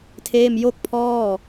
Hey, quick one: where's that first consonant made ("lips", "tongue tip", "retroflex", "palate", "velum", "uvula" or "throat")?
tongue tip